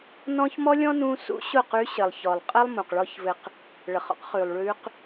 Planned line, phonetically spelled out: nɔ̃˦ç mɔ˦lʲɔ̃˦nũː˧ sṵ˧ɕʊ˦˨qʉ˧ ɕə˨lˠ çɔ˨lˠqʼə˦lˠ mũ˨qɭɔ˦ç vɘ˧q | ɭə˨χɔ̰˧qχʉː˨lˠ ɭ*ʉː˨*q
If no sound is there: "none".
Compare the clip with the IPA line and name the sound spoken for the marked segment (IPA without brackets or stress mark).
ʉː˧